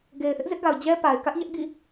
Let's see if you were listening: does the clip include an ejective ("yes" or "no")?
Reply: no